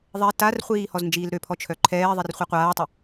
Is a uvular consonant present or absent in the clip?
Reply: present